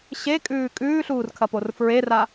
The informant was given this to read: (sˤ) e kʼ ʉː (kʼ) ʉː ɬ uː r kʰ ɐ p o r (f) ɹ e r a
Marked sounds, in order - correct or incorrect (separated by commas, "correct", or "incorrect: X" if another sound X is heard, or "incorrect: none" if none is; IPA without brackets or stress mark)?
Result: incorrect: ɕ, correct, correct